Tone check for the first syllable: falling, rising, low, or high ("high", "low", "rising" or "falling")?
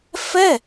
falling